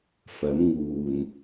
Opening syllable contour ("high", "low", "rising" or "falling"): rising